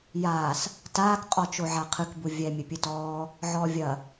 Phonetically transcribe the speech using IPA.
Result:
j aː s | t aː k qʼ ɔ t͡ʃ o ʕ a qʰ ɨ k b u vʲ ɛ mʲ ɘ pʲ ɨ t ɔː | ʕ ɔː vʲ ɐ

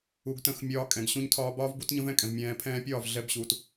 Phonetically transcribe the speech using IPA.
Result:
u˨ ɡ t ə̃˧ x mʲ ɒː˧ kʼ ɛ̃˨ ɡ ɕ ũ˧ ɲ tʰ ɒː˧ b ɒː˦ v b u˦ t ɲ ə̃˦ v ɛ̃˦ kʼ ɛ̃˨ v mʲ ɛ̃ː˨ pʰ ɛ̃ː˧ pʲ ɒː˦˨ v ɮ ɛ˧ b ɕ u˨ t

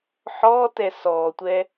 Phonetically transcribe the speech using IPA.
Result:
ħ ɔ t ɛ s ɔ tʷ ɛ

